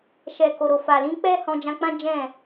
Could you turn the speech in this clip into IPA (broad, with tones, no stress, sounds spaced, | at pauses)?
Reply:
ʃ ɛ˨ k o˨ ɾ o˨ f a˨ l ĩ˧ k͡p ɛ˦ h ɔ̃˧ d͡ʒ ã˧ k͡p ã˦ d͡ʒ ɛ̃˦˨